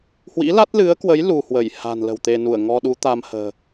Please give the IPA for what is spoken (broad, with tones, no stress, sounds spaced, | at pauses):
h w ḭ˧˥ l a˦˥ t̚ l ɨ˨˦ ə̯ k w ə˨˦ j l u˧ h w ə˧˩ j h a̤˨˩ n l ə̤˨˩ w t̪ e˧ n u˧˩ ə̯ ŋ ɔ˧ ɗ u˨˦ t̪ a˧ m h ə̤ː˨˩